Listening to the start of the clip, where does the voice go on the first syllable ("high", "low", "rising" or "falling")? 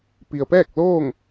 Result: low